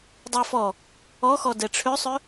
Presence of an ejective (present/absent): absent